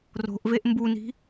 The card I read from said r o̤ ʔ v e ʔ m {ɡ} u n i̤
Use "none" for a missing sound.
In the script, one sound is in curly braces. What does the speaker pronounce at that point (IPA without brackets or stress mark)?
b